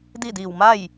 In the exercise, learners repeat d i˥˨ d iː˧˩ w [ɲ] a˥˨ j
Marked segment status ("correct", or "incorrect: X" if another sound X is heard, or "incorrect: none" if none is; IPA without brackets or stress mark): incorrect: m